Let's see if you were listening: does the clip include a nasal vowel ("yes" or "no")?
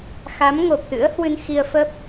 no